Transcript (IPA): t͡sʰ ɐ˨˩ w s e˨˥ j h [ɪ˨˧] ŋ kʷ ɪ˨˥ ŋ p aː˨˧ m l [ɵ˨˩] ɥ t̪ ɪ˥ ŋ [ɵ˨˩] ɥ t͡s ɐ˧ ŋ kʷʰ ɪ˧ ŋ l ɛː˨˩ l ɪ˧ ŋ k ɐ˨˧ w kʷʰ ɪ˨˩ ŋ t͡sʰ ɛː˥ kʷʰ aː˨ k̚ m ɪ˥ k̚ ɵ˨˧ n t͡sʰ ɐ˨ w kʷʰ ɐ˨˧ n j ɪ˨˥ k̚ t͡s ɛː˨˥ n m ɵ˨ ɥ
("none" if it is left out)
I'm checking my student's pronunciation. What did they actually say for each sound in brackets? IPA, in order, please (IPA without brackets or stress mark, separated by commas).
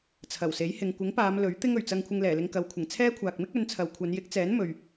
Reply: ɪ˨, ɵ˨˥, ɵ˨˩